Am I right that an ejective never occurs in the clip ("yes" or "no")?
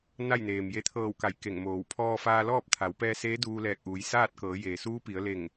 yes